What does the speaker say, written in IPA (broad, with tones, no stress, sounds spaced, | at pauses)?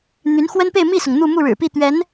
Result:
n̪ y˧˥ n x w ə˥ n p e˥˧ ɪ̯ m i˥˩ s ʊ˩ ŋ n̪ u˥˧ m u˥˩ ɻ ɻ̩˨˩ p i˥˩ t̪ ɥ ɛ˧˥ n